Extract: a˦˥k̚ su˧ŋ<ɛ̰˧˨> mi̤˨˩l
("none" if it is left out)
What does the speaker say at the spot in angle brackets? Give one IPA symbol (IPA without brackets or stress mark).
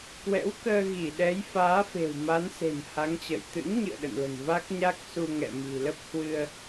ɛ̰˧˨